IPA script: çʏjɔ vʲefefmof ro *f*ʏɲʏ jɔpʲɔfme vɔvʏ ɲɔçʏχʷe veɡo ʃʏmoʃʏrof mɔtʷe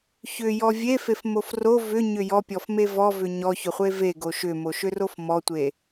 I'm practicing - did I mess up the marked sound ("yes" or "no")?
yes